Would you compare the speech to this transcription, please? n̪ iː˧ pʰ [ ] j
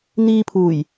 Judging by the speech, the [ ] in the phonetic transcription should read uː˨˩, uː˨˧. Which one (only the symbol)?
uː˨˩